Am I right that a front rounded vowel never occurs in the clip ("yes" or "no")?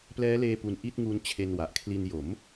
yes